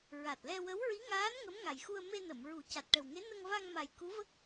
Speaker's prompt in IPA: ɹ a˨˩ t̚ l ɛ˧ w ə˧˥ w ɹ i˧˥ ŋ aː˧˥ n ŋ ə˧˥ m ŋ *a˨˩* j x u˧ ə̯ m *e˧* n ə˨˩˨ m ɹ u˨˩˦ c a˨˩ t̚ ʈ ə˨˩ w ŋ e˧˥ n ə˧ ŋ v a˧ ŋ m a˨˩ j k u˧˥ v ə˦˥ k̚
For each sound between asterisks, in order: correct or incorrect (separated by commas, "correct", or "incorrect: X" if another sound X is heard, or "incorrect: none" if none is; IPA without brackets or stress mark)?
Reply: correct, correct